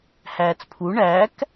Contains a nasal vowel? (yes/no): no